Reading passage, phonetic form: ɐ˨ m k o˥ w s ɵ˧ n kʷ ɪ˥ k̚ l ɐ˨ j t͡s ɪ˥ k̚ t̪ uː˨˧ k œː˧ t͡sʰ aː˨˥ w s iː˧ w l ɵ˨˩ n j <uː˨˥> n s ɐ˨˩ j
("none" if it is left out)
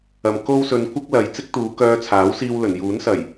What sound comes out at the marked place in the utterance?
uː˨˥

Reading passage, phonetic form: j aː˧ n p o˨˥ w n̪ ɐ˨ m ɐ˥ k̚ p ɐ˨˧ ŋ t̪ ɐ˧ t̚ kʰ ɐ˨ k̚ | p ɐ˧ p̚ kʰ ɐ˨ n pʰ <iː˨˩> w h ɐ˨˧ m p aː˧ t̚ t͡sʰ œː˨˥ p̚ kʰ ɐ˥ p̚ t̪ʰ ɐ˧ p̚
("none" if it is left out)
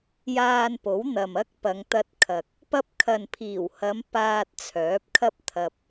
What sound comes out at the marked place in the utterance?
iː˨˩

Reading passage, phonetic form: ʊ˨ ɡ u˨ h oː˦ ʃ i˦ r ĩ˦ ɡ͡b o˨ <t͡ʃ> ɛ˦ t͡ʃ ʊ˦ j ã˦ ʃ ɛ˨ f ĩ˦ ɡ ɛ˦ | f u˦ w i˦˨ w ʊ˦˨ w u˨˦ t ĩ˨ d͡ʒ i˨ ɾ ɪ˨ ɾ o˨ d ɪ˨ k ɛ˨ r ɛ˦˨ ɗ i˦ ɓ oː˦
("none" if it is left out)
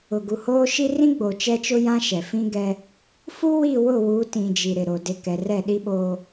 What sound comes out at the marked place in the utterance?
t͡ʃ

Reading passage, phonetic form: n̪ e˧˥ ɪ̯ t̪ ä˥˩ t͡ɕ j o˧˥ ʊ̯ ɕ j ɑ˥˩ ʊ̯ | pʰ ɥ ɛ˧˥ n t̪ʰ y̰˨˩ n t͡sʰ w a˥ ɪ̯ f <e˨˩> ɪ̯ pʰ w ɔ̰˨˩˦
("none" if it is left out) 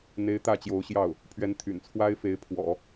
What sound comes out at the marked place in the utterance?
e˧˥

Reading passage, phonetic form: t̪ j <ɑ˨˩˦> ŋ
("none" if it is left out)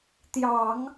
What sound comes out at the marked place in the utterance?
ɑ˨˩˦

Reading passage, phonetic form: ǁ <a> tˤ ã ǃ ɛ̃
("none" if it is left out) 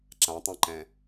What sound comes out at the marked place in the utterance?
ã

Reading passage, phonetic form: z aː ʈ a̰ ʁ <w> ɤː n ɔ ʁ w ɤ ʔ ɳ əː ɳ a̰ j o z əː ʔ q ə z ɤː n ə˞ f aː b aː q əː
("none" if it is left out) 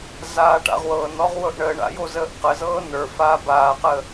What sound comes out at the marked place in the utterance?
w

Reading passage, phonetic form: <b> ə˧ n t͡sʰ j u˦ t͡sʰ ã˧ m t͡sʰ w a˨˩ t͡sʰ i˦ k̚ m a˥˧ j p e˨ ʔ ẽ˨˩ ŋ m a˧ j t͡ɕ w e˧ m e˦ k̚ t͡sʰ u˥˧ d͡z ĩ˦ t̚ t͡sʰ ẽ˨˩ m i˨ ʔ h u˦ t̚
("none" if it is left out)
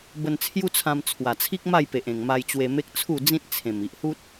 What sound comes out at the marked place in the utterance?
b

